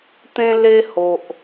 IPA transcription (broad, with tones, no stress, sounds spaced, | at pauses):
t̪ ẽ˦ l e˦ h o˨ ʔ